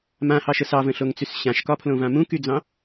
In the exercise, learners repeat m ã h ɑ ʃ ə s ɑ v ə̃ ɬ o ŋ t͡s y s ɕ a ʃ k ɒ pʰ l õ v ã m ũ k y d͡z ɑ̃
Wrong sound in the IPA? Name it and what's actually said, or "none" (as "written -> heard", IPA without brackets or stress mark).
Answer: a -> ã